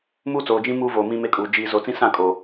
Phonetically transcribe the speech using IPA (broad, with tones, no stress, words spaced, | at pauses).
muː˦t͡soː˨ d͡ʒĩ˦ muː˦voː˨ mĩ˦me˦kʼuː˨ d͡ʒiː˨zo˨t͡sĩ˦ sã˦˨ kʼo˨